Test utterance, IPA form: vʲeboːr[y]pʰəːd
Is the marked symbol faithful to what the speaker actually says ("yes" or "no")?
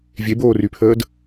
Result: yes